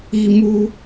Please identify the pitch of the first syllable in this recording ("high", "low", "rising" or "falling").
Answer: high